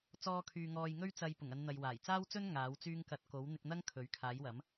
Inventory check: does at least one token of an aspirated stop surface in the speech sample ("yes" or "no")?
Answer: yes